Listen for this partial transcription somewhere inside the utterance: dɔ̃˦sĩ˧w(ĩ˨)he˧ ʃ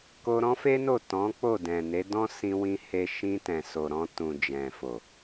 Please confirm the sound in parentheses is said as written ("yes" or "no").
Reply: no